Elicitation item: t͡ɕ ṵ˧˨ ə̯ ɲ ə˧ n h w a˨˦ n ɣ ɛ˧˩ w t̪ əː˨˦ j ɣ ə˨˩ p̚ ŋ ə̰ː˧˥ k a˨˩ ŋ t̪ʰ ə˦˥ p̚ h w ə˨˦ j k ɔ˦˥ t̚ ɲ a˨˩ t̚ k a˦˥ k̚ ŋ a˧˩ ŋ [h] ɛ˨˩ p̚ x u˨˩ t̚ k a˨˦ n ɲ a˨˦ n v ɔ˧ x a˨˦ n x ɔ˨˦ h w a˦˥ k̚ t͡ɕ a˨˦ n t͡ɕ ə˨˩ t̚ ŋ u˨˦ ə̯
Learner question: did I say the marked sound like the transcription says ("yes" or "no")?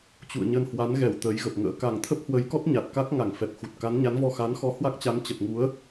no